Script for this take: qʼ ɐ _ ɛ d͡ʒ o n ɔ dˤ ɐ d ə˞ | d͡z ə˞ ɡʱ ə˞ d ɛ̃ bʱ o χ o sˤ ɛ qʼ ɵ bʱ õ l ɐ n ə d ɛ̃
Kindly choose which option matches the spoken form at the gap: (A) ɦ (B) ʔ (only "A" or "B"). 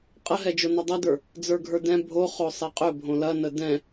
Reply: A